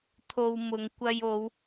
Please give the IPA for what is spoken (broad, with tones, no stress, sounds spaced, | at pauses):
t̪ʰ o˧ w m ʊ˨˧ ŋ kʷ ɐ˧ j o˨˧ w